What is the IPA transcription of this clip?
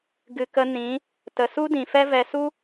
ɡɨ˧ kə˦ nĩ˨˦ | tə˨su˦dĩ˨fɛ˦ vɛ˧su˦

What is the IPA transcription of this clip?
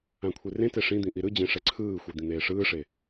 ãkʷʰerẽte ʂĩd̪ĩ ʔiɾɯd͡ʑẽ ʂɛǀʰɯːxʷi d̪ĩn̪eːʂɯːʂe

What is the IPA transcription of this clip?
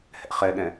hɛ̰χɛɠɛ̃

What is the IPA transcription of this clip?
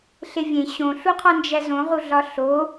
ɬevʲẽ ɕõɬuqʰɒ nd͡ʒæzõʁu ɮɒɬo

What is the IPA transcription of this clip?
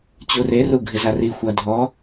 t͡ɕureru ɡʱɪzari xʷadʱɔ

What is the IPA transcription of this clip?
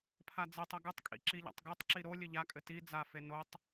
pʰad͡zɘtˤɐ ɡɨtˤkʼḭ ǁiʎa̰tˤɡotˤǁi ɾo lʲɘʎakʼɘ ti d͡zafe notˤ

